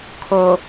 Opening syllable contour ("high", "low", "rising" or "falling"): low